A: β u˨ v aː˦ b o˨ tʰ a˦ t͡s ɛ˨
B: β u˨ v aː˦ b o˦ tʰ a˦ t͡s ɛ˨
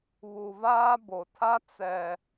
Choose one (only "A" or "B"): A